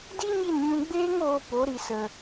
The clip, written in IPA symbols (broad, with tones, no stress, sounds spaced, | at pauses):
d i˦ ɲ i˦˨ n ɲ ũ˧ ɡ͡b eː˦ ŋ oː˧ p o˨˦ ɾ i˧ s ə˧